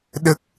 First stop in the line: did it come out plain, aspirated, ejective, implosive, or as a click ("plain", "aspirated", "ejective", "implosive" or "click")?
implosive